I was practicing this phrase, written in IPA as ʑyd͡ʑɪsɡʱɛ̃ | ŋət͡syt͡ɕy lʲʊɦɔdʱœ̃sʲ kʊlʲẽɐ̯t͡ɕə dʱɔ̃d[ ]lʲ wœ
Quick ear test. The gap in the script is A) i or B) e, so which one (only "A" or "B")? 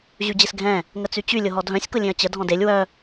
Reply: B